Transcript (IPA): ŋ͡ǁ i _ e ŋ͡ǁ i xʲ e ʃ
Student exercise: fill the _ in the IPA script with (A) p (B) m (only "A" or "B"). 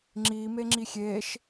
B